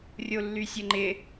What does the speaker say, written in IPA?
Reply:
rʲ o lː y sʲ ə ŋ͡ǃ ɪ

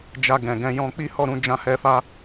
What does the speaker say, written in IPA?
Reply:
d͡ʒ a˧ ɡ ɛ̃˨ ɡ ɛ̃˧ j ɔ̃˧ k͡p i˦ h ɔ˦˨ ɾ ũ˨˦ d͡ʒ ã˧ h ɛ˧ f a˧

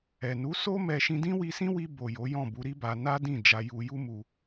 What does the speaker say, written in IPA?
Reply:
ɛ˨ n u˨˦ s o˦ m ɛ˧ ʃ ĩ˧ d ĩ˦ w i˧ s ĩ˦ w i˧ b o˨ j o˨˦ j ɔ̃˦˨ b u˨˦ ɾ i˦ b a˧ n a˦ d ĩ˦˨ d͡ʒ a˧ j u˧ j u˦ m u˧

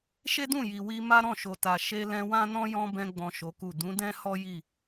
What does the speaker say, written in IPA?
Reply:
ʃ e˦ d ũ˦˨ j i˨ w i˧ m a˦ ɾ ɔ̃˦˨ ʃ o˨ t a˨ ʃ e˧ l ɛ̃˧ w ã˦ n ɔ̃˦ j ɔ̃˦ b ɛ̃˧ ɡ͡b ɔ̃˨ ʃ o˨˦ k u˦˨ d ũ˨˦ d ɛ̃˦ h ɔ˦ j i˦˨

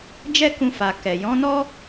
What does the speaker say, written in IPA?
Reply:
d͡ʒ ɛ˦ k ũ˧ f a˨ k ɛ˨ j ɔ̃˨˦ n ɔ˦

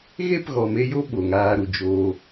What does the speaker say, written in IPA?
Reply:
ɣ e˦˨ p ɣ ɔ˨ m e˧ j o˦ ɓ o˨ ŋ aː˧ ɾ u˨ d͡ʒ oː˧

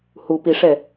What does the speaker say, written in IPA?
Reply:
h u p i ʂ ɛ

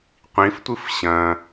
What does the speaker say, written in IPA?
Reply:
qʷ ĩ f tʷ ɨ f ɕ ɐ̃

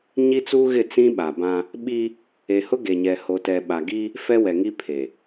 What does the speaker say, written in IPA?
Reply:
ɲ i˦ t͡s u˦ ɣ ɪ˦˨ t͡s ĩ˦ ɓ a˨ b ã˦ | ɓ i˦ | e˨ h ʊ˦ ɡ e˨ ɲ ɛ˨ h o˨ t ɛ˨ ɓ a˨ ɡ i˦ | f ɛ˦ w ɛ˨ ŋ i˦ pʰ e˨

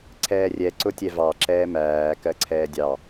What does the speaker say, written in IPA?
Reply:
ǀʰ ɛː rʲ ɛ ǀ ʊ tʲ ɛ v ɑ ǁ ɛː m æː k ɜ ǀʰ ɛː dʲ ɑ

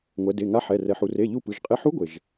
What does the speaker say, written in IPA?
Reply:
ŋʷ ɛ˩˧ d e˩˧˩ ŋ a˧˥ ħ ɛ˩˧˩ r ɛ˩ ħ u˩ r e˩˧˩ ʎ u˧˩ p ɯ˩˧˩ ʒ qʼ e˧˥ ħ u˧˥ ɡʷ e˩ ʒ

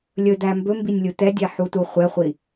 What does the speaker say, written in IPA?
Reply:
lʲ ɵ d æ m b ɵ m b i nʲ lʲ u t ɛ dʲ ɛ ħ u t u χʷ ɛ χʷ i

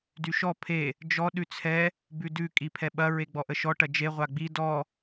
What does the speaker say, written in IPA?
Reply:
d y ʃ ɔ pʰ e | d͡ʒ ɔ ɗ ʉ t͡sʰ ɛ | b ʉ d ʉ kʼ i pʰ ɛ ɓ ɐ ɹ e ɡ͡b ɔ ʔ ə ʃ ɔ ʈ ɐ d͡ʒ e ʁʷ a ɡ͡b i d ɔ

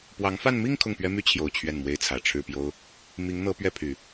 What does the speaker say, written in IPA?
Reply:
p w ɑ˧˥ ŋ f a˥˧ n m i˥˧ ŋ kʰ ʊ˥˩ ŋ p ɥ ɛ˥ m y˥ t͡ɕʰ j o˨˩ ʊ̯ t͡ɕʰ ɥ ɛ˥˩ n m w e˥ ɪ̯ t͡sʰ ä˨˩ ʈ͡ʂʰ ɻ̩˥˩ p j o˥ ʊ̯ | m i˧˥ ŋ n̪ ɤ˧˥ p ɥ ɛ˥˩ pʰ y˨˩˦

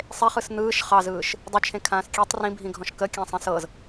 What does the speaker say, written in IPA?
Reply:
sˤ e χ ɯ s n̪ ɯː ʃ χ ɑ z ɯː ʃ | dˤ ə t͡ʃʰ ẽ kʰ ãː s kʲ e tˤ r ĩ bʱ ĩ ɡʱ ɔ̃ ʃ k ə kʲ ã sˤ ẽ s ɤ z

